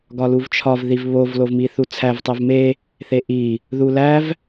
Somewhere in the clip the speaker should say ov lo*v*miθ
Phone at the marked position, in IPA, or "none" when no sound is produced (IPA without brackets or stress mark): v